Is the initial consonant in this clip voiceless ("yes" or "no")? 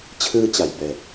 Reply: yes